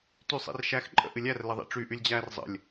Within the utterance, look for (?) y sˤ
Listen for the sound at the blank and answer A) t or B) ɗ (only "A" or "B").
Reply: A